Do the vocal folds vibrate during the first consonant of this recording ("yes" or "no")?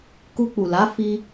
no